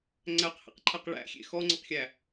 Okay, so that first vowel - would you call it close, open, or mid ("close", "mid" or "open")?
open